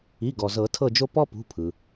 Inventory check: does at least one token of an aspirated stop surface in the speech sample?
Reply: yes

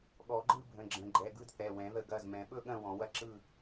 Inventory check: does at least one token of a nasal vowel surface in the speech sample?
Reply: yes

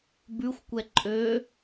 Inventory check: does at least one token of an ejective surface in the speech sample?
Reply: yes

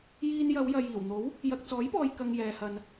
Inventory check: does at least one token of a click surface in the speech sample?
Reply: no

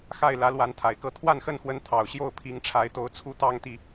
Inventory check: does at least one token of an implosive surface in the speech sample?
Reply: no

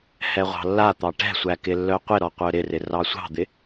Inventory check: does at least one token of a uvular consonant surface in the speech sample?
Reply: yes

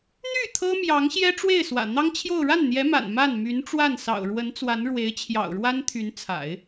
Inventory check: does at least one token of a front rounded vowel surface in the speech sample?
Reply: yes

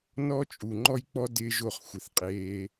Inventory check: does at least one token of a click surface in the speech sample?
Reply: yes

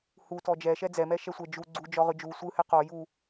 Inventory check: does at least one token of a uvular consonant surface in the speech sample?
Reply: yes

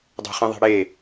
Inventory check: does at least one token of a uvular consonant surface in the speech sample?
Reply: yes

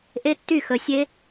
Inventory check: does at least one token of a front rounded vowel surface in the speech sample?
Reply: yes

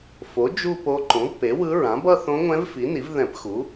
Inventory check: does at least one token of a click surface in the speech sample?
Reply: yes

